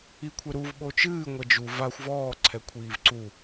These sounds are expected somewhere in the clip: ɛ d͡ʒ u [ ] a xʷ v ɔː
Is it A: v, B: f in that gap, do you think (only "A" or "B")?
A